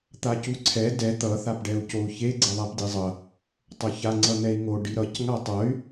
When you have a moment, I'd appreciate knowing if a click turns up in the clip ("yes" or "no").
yes